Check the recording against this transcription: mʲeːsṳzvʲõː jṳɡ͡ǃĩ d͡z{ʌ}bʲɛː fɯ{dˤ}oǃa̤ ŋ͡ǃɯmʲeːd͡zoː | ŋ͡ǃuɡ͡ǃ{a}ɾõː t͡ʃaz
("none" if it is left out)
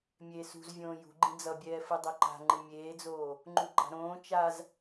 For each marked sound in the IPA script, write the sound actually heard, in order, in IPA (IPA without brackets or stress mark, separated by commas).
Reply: ʌ, dˤ, a̤